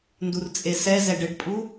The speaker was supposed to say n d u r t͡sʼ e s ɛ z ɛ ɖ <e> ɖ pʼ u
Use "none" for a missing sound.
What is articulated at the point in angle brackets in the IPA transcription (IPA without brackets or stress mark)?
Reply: ɘ